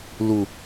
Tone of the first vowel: low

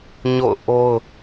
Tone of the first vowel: falling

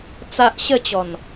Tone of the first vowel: high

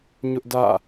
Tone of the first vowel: high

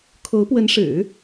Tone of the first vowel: rising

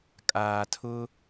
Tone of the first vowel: low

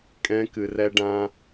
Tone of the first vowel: high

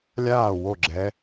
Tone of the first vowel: falling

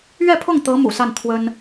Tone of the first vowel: falling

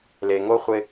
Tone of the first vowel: low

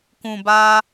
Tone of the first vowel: low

